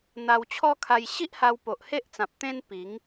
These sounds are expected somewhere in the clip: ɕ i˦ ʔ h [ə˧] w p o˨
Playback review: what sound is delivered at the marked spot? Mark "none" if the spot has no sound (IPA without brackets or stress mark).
a˧